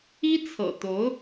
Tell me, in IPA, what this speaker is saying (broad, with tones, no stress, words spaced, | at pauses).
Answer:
i˥t͡sʰɤ̰˨˩t̪o˧˥ʊ̯